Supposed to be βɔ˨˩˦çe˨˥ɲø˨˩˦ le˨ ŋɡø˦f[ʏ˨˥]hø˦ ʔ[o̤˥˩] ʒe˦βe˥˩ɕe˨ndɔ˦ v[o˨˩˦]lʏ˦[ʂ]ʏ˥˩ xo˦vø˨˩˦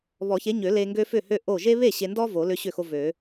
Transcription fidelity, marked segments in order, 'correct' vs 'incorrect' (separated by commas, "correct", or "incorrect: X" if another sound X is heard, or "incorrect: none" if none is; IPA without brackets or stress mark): incorrect: ʏ˥˩, incorrect: o˥˩, correct, incorrect: ɕ